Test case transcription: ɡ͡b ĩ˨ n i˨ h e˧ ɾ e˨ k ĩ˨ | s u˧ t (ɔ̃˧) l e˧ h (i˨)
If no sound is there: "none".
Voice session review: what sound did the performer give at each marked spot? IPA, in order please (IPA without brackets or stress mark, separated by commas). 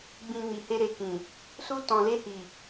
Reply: ɔ̃˨, i˨